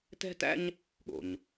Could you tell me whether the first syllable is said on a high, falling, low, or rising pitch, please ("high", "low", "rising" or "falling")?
high